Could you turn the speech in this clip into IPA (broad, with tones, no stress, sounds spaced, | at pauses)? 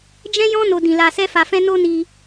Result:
d͡ʒ ɛ̃˦ j ɔ̃˦ n o˧ d ĩ˨ l a˨ s ɛ˧ f a˨ f ɛ̃˧ n o˦ n i˧